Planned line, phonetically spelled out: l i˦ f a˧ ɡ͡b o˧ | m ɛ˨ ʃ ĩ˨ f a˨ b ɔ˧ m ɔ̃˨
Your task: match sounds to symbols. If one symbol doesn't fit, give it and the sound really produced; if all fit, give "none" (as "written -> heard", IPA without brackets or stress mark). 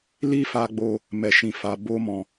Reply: ɔ˧ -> o˧